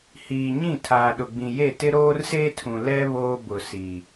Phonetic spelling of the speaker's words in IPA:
h iː˨ ɲ ĩ˦˨ tʰ aː˨ ɗ ʊ˨ ɡ͡b ĩ˨ j e˦˨ t ɪ˦ ɾ oː˦ r s eː˦ tʰ ũ˨ l ɛ˦ β oː˦ b ʊ˨ s i˨

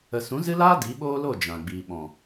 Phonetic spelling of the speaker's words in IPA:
ə˨ s ũ˨˦ z ɨ˦ l aː˦ d i˨˦ ɓ oː˦ l o˦˨ d͡ʒ ã˨ ɡ͡b iː˨ ɓ ɔ̃˨

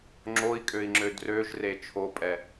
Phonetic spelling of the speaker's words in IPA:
ŋ͡ǁ o i̯ kʼ ø i̯ ŋ͡ǁ ø d r ø ʒ r e t͡ʃʰ o pʼ ɛ

